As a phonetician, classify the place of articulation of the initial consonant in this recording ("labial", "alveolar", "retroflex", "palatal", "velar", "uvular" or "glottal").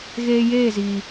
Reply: velar